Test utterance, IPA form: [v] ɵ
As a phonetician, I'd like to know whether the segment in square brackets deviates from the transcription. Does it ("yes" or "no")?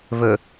no